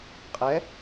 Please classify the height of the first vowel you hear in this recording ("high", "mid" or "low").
mid